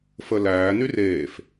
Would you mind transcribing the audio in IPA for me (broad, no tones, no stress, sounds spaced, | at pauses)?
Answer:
f ə l æː n y r eː f